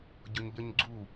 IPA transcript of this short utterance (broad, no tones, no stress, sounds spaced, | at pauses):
ɟ ʊ ɲ ʎ ʌ ɲ ɡ͡ǀ u